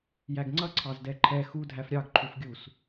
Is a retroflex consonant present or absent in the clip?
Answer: absent